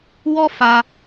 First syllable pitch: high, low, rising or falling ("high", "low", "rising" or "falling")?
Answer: high